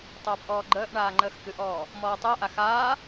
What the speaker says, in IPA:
tˤœːpʔɔːɡ͡ǃəːʔɳaː ŋ͡ǃəːxkɨʔɔː | mɔːtˤɯɐ̯ʔa xaː

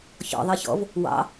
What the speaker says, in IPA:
çɔ̰ ðˤɜçɔ̰v | wɑ̰

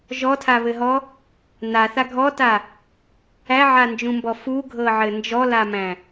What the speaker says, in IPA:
ʒɔtʰaβɘɦɔ | naθa ɡʱɔta | æʕand͡ʒũmbɔ fuɡʱɤʕɘ nd͡ʒɔlamæ̃

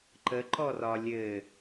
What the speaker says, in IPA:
ǃəǃɔ rɒlʲɘ

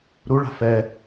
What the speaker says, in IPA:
ɾuɭa̤ fɛ

